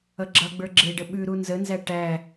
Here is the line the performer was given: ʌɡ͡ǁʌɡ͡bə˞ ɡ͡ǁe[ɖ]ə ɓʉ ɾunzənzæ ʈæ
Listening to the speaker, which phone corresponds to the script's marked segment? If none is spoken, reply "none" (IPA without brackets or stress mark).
ɖ